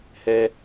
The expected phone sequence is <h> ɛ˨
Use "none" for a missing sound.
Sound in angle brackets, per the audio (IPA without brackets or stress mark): h